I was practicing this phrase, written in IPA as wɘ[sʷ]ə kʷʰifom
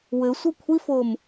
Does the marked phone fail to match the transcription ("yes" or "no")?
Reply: no